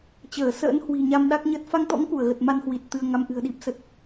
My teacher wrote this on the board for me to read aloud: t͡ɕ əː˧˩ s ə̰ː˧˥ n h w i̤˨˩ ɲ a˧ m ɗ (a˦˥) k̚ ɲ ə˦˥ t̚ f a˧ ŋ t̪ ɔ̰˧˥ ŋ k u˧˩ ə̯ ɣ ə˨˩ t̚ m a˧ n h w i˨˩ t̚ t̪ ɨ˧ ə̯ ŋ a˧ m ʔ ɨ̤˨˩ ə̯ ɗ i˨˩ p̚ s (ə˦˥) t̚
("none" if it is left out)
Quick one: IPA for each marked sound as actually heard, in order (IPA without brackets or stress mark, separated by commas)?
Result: a˦˥, ə˨˩